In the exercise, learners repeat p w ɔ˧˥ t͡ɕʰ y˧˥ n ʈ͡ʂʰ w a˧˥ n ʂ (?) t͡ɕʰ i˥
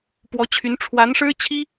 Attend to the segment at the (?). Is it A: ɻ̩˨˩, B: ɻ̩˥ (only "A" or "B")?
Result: B